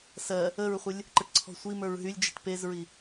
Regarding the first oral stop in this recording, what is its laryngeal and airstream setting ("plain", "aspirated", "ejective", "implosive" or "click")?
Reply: click